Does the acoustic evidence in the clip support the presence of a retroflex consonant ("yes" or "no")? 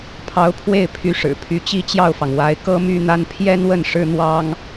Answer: yes